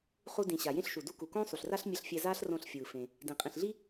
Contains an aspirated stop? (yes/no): no